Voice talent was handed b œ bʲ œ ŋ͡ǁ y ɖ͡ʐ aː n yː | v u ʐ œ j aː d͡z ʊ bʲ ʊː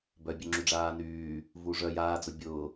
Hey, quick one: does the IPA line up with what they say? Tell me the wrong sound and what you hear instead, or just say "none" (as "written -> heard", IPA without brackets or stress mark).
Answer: none